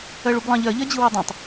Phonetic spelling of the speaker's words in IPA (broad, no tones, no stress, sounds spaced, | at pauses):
ɜ ɭ u b lˠ ɑ̃ ʎ ɜ ʎ ɜ d͡ʑ ɯ w o dˤ ɛ̃ tˤ